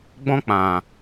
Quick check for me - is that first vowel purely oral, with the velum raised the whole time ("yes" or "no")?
no